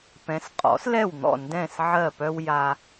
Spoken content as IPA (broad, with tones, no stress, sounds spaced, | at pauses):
p ɛ̃˩˥ s qʼ ɔ̰˩˥ s l ɛ˥˩ w n̪ ɔ̰˥˩ n d ɛ̃˥˩ s ʕ ɜ˥˩ p œ˥ w j a˧